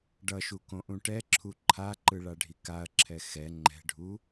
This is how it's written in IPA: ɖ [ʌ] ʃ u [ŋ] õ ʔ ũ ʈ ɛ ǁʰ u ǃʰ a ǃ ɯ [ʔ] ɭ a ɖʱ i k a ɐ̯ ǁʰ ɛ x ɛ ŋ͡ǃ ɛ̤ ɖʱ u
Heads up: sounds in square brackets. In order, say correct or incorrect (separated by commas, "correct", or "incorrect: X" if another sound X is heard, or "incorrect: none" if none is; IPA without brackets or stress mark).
correct, incorrect: k, incorrect: none